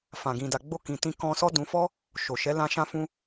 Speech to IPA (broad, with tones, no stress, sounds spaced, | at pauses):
f ã˨ ɡ ĩ˨ d a˨ ɡ͡b o˧ k ĩ˨ t ĩ˧ k ɔ̃˧ s ɔ˦ d ũ˧ f ɔ˦ | ʃ o˨ ʃ ɛ˨˦ l ã˦ ʃ ã˦ f ũ˦